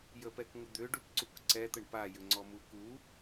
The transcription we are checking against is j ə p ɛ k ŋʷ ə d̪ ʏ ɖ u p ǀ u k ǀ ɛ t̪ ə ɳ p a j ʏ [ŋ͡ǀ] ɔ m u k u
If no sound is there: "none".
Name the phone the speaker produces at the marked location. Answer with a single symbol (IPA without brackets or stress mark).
ŋ͡ǀ